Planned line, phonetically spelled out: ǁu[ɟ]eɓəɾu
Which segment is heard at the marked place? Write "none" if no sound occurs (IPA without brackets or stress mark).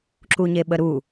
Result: ɲ